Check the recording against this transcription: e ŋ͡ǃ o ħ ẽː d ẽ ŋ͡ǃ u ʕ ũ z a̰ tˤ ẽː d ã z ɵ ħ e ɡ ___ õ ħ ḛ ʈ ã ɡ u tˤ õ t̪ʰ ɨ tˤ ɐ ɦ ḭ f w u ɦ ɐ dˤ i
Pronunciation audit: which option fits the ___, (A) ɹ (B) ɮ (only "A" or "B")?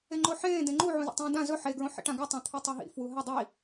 A